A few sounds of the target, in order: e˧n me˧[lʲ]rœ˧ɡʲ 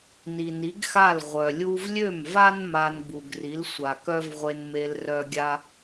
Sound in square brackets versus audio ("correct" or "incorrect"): incorrect